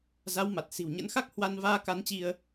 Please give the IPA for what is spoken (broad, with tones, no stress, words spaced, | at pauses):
za˨˦wma˨˩t̚ si̤˨˩wɲə̰˧˥nxa˦˥k̚ hwa˧nvaː˧ka˨˦nt͡ɕi˧ə̯